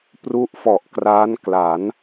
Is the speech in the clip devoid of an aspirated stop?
yes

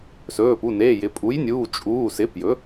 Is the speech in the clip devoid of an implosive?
yes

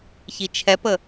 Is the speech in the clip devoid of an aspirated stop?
no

